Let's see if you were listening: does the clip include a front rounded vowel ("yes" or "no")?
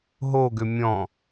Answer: yes